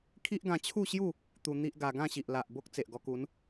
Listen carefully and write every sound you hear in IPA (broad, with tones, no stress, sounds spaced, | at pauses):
kʰ i˦ ʔ ɡ ã˧ t͡ɕʰ u˥˧ ɕ j u˥˧ | t̪ u˧ n̪ i˦ ʔ ɡ a˧ ɡ ã˥˧ ɕ i˨ ʔ l a˨ ʔ b o˦ k̚ t͡s e˨ ʔ ɡ ɔ˧ k u˨˦ n